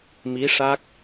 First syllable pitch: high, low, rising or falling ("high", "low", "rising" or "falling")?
rising